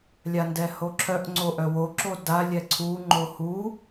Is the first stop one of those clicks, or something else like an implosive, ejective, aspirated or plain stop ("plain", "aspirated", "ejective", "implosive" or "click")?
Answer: plain